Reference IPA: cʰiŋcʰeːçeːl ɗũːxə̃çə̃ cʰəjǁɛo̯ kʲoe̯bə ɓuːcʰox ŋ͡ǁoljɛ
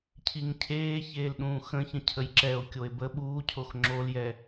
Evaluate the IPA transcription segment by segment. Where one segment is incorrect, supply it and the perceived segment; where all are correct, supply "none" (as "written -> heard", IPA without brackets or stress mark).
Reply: none